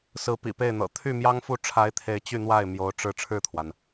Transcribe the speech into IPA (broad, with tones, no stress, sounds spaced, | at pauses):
s ɹ̩˧˥ p ḭ˨˩ p e˥˩ ɪ̯ n̪ ɤ̰˨˩ t̪ʰ y˥˩ m j ɑ˥ ŋ f u˥˩ ʈ͡ʂʰ a˧˥ ɪ̯ t̪ʰ e˧˥ ɪ̯ t͡ɕ y˥˧ n̪ w a˥˩ ɪ̯ m j o˧˥ ʊ̯ ʈ͡ʂ ɻ̩˥˧ ʈ͡ʂʰ ɻ̩˥˩ t̪ʰ w a˩ n